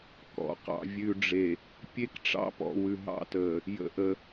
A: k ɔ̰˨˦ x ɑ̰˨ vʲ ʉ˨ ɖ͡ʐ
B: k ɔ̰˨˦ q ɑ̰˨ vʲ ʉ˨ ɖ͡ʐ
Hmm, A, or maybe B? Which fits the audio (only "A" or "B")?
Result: B